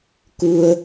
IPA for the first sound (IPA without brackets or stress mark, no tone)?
k